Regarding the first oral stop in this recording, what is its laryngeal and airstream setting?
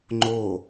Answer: click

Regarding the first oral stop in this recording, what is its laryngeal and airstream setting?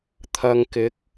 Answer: aspirated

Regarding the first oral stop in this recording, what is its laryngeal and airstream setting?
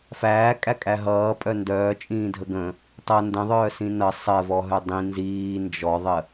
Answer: ejective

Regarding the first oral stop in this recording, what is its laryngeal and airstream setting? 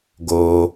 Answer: plain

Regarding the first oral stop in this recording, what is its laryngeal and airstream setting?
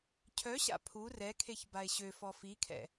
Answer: aspirated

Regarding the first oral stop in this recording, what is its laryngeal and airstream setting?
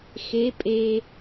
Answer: ejective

